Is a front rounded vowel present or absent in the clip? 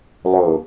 absent